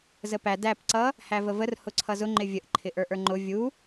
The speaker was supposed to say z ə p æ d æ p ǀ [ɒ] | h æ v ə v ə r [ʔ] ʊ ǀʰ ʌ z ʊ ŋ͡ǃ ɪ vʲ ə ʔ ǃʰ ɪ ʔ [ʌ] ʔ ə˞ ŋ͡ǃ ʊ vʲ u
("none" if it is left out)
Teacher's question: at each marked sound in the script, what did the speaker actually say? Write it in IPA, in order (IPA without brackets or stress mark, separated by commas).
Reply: ʌ, h, ə˞